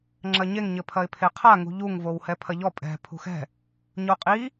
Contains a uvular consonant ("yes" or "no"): yes